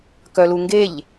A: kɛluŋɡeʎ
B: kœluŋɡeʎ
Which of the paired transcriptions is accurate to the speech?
B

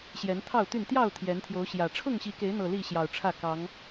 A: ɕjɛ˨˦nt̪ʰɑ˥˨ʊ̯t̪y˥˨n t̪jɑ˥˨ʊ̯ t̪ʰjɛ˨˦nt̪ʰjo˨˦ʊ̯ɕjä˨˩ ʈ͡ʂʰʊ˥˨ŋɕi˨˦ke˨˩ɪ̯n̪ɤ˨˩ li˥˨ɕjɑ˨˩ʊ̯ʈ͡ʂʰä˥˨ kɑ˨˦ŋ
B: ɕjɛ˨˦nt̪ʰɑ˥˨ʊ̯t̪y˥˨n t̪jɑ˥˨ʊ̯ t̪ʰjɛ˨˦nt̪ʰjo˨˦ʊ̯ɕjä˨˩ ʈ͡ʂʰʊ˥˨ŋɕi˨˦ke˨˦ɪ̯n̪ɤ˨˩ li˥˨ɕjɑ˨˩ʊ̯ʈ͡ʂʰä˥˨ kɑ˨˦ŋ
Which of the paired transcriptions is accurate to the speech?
B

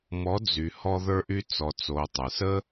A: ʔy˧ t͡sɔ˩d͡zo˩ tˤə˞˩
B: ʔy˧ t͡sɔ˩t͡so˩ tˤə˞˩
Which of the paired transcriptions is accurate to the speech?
B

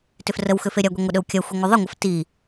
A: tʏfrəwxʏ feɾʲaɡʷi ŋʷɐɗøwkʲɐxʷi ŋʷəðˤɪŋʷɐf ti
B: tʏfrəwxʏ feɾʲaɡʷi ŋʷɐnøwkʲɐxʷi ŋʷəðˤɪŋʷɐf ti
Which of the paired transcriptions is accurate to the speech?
A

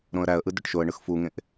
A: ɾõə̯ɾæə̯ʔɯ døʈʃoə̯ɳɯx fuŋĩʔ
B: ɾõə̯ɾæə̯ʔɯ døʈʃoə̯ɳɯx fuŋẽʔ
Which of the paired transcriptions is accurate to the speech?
B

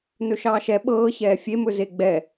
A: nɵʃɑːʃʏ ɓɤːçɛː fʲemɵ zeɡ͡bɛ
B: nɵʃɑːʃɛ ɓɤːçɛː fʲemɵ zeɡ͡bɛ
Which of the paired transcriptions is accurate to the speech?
B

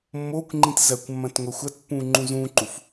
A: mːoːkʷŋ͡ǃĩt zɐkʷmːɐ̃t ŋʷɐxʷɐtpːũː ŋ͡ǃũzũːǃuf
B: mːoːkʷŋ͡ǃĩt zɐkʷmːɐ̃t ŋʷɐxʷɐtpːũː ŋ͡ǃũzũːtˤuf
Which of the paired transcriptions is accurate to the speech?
A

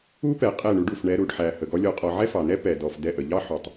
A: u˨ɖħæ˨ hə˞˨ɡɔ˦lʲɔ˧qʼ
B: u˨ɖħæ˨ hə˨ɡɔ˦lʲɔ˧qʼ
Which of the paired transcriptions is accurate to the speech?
B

